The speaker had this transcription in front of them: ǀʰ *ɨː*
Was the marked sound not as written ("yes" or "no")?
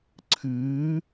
no